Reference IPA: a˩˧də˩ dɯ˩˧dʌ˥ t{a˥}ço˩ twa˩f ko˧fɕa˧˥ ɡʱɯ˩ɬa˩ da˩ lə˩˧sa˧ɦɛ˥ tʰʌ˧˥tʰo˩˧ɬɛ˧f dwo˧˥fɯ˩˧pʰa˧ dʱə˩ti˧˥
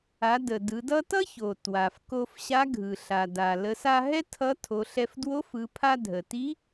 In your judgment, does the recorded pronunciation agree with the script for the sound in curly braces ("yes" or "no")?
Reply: no